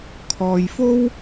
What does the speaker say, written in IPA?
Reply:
kʰ ɔː˨ j f o˥ w

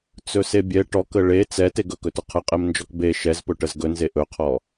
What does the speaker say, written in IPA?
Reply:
t͡s ɵ s e bʲ ɛ ʈ ɔ k ə ɭ e t͡s ɛ t e ɡ ɵ k ɵ t ɵ qʰ ə qʼ e m n d͡ʒ ɔ k b e ʃ ɛ z p ɵ ʈ ə z ɡ ɵ n z e ʔ ɵ qʰ ɔ

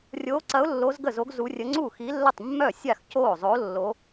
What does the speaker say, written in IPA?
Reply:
rʲ oː˧˥ ǀ ɐ˧˥ ʊ̯ lː o˧˥ z ɡ ə˥˩ z o˧˥ ɡ z u˧˥ rʲ ə˧˥ ŋ͡ǀ u˥˩ x i˧˥ lː ə˥˩ tˤ mː œ˥˩ sʲ a˥˩ x c oː˥˩ zˤ o˧˥ lː o˧˥

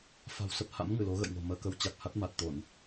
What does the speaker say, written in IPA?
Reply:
f a̤˨˩ w s ə˦˥ p̚ h a̰˧˥ m ŋ ɨ˧˩ l o˨˦ ɣ ə̰˧˨ j ŋ o̤˨˩ m əː˧ k ə˧ w t͡ɕ a˨˩ k̚ h a˦˥ t̚ m a˨˩ t̚ t̪ o˧˩˨ n

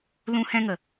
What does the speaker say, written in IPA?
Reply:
l ũ˧ h ɛ̃˧ ŋ ə˨

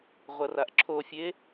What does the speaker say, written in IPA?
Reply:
ʁʷ ɐ r a ʔ ǁʰ o fʲ e

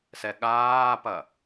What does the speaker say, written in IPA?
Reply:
s ɛ ɠ aː p ɐ

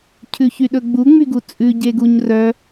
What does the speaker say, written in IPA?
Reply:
cʰ ʉ ç y ɗ ɵ ɡ͡b u ŋ͡m y ɡ u t͡sʼ ʉ ɟ e ɡ u ɲ r œ

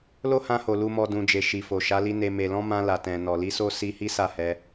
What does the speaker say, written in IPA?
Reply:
l o˦ h ã˧ h o˨ l u˨ m ɔ˨ d ũ˨ d͡ʒ e˨ ʃ i˨ f o˨ ʃ a˨˦ l i˧ n e˨ m e˨ l ɔ̃˧ m ã˧ l a˨ t ɛ̃˨ n ɔ˨ l i˧ s o˦ s i˦ h i˦ s a˦˨ h ɛ˧

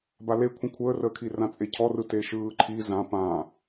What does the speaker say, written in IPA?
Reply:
b a l e kʷʰ ə̃ kʷʰ əː r əː kʰ i r ã t͡sʼ e cʰ ɔ r ɯ t e ʃ ɯː ǃʰ i z ã p ã

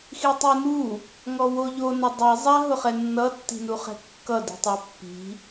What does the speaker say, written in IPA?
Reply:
x i tˤ u n u | ŋ ɔ w o ʎ o n ʊ dˤ i zˤ a ɦ ʊ χ ɛ nː ʌ tː i̤ n u χ ɛ̤ kː ʌ d i̤ tˤ a pː i̤

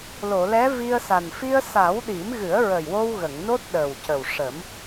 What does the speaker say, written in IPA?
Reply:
l o˨˩˨ l ɛ˧˥ v i˧ ə̯ s a˨˩ n f i˧ ə̯ s a˨˩˦ w ɗ i˨˩˦ m ɣ ɨ˨˩˦ ə̯ ɹ ə˨˩ j w o˧ w ɣ ə˨˩˨ ŋ n o˦˥ t̚ ɗ ə˨˩ w c ə˨˩ w ʂ ə˨˩˦ m

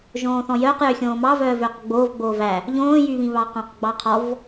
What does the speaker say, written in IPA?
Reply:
ʒ õː θ ɔ̃ j œː q j ø xʲ õː m ɑ v œː v øː q ɡ͡b oː v ɡ͡b oː v æ | ʎ õː j y β ĩ β ɑ q ɔ̃ q ɡ͡b ɑ qʰ ɔ v

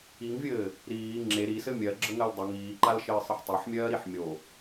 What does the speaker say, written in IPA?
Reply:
i ŋ vʲ ɘː | ɾ iː ŋ͡ǁ e ɾ i s ɘ mʲ ɜ ɡ͡ǁ ə ŋ ɜ l dˤ ɘ ŋ iː ǃ a l ʃ ɘː sˤ ɘ ħ tˤ e ħ mʲ ɜː ɾ i ħ mʲ o

